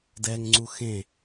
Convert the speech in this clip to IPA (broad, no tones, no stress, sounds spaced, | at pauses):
d ɛ ŋ ŋ͡ǀ u x ẽ